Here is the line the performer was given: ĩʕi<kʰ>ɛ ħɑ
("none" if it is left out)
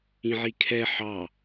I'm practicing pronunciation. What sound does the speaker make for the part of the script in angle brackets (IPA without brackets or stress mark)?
kʰ